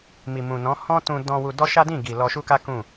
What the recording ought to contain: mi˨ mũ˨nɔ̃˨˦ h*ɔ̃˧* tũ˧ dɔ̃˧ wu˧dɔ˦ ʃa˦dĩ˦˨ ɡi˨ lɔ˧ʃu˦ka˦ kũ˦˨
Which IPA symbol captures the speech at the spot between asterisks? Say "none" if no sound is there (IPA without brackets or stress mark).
ɔ̃˦